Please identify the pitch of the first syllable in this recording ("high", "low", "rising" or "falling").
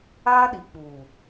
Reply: high